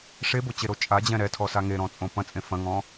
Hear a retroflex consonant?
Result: yes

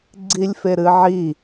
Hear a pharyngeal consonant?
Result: yes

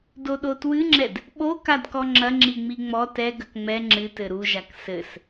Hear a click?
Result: yes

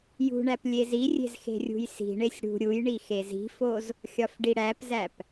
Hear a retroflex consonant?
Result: yes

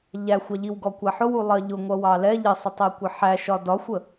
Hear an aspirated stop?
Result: no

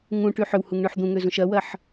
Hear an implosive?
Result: no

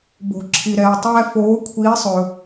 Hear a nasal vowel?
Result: no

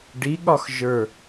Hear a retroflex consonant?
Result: yes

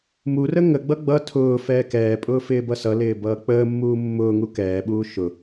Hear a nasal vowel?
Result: no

